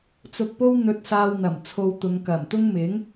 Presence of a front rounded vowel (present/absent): absent